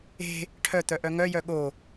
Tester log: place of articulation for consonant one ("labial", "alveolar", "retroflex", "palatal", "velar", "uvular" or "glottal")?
retroflex